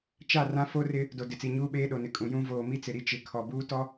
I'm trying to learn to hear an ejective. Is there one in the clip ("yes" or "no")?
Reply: yes